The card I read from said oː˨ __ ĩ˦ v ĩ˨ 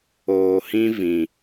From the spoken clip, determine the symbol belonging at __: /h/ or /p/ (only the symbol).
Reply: h